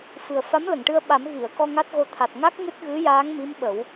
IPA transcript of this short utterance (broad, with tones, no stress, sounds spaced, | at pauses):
f ɨ˨˩ ə̯ f a˧˥ m l ə˨˩˨ ŋ ʈ ɨ˧ ə̯ ɓ a˨˩˦ m ɣ i˨˩˨ ə̯ k ɔ˧ ŋ a˦˥ t̚ ɣ o˧ t̪ʰ a˨˩ t̚ ŋ a˦˥ k̚ ŋ ɨ˦˥ t̚ ɣ ɨ˧˥ j aː˧˥ ŋ m i˧˥ m ɓ ə˨˩˦ w